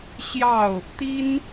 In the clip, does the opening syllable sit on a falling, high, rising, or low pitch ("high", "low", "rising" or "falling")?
falling